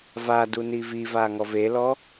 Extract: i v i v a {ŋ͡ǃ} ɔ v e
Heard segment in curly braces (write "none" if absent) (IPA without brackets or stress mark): ŋ